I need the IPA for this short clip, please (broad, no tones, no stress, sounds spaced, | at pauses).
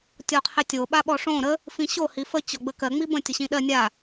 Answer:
tʲ ɔ qʰ e tʲ o ɓ a ɓ ɔ ʂ õ ɾ ə | f ĩ ɕ o h i f ə t͡ɕ ɔ ɡ͡b ə k ɜ ŋ͡m i b ə̃ tʲ ə ɕ ĩ ɗ ɜ nʲ a